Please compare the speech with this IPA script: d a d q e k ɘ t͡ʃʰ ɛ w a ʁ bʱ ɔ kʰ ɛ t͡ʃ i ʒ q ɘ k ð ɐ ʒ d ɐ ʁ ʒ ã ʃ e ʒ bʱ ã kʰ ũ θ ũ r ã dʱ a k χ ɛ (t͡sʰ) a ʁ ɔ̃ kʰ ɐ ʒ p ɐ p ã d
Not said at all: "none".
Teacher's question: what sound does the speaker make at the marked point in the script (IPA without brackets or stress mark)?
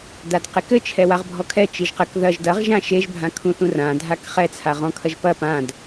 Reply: t͡sʰ